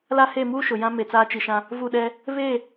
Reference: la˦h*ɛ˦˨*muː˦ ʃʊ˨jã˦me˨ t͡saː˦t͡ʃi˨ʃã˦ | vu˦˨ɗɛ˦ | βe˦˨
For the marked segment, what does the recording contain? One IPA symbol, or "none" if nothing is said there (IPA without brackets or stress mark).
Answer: e˦˨